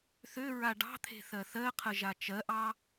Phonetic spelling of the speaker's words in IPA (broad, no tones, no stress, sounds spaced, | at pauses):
θ ø ɹ a ɖ ɑ̤ t̪ʰ e̤ θ ɜ θ ɜ qʰ ə ʒ a t͡ʃ ɜ ʔ ɑ